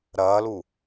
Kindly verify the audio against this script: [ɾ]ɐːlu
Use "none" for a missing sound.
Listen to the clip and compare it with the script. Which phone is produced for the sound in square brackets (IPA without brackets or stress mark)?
ɾ